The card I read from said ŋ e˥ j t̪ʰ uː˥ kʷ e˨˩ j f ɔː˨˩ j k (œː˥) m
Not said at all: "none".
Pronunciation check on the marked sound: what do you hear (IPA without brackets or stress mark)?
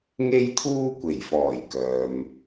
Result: œː˨